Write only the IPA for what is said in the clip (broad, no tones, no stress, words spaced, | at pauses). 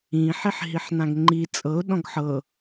ĩ ħiħɦiħnãɡŋ͡ǃi t͡sʼɤʊ̯ ɗɔ̃ɡħɤ